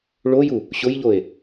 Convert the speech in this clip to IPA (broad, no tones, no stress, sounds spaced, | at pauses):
ɭ o j u | ɕ ʊ j ʎ o e̯